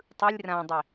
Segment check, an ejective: absent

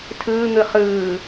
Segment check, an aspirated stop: present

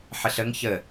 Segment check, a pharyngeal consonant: present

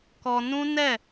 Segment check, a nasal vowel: present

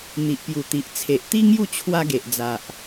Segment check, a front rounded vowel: absent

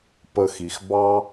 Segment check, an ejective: absent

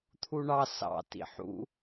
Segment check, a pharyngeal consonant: present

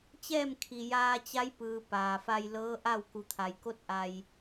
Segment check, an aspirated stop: present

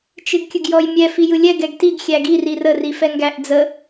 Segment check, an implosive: absent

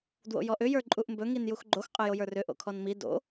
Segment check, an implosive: absent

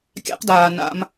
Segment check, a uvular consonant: present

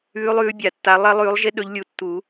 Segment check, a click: absent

